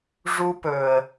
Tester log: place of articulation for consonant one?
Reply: retroflex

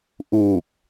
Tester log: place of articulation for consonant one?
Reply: glottal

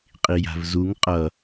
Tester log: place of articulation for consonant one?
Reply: uvular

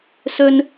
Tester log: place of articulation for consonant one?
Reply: alveolar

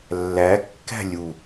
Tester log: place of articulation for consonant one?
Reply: alveolar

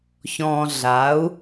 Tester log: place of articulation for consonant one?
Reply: palatal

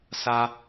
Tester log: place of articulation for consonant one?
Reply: alveolar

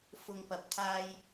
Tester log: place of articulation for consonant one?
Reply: labial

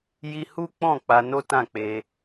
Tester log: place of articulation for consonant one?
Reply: palatal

